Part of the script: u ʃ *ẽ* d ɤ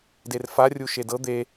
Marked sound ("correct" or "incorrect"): incorrect